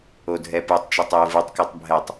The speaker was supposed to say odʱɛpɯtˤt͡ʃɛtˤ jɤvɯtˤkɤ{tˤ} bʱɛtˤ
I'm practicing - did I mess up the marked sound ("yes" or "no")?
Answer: no